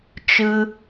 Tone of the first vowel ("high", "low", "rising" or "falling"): high